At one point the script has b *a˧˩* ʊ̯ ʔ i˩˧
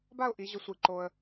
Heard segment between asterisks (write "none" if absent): a˥˧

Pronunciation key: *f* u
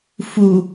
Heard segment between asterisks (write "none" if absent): f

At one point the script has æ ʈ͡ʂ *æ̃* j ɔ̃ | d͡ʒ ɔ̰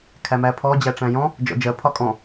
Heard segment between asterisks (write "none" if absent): æ̃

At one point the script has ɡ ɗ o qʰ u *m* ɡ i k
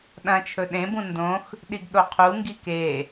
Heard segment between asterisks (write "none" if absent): ŋ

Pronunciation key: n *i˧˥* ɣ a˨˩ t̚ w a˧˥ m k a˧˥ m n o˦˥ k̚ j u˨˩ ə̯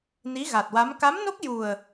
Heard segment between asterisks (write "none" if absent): i˧˥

